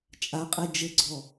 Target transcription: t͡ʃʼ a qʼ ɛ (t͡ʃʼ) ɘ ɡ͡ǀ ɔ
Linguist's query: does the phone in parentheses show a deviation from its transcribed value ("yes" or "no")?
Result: yes